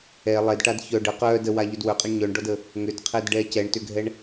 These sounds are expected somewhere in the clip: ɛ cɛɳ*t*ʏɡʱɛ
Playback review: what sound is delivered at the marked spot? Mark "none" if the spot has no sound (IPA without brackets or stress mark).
t